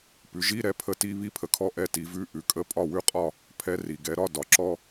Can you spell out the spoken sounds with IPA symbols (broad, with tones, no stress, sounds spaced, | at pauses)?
p ʉ˩˧ ʒ i˧˥˧ ɾ ɛ˧ pʰ ə˥˩ t i˧˥˧ β i˧˥ pʰ ə˩ kʰ ɔ˧ ʔ ɛ˥˩ t i˩˧ v ʉ˧˥˧ ʔ ʉ˩ kʼ ə˧˥˧ pʼ ɒ˥˩ w ʉ˥˩ qʼ ɒ˥˩ | pʰ ɛ˧˥ r i˩ ɡ ɛ˩˧ ɾ ɒ˧˥˧ d ɒ˩ ǁ ɔ˧